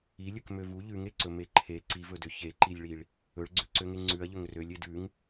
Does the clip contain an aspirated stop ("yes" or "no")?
yes